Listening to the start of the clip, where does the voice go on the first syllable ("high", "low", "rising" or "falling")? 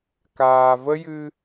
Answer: low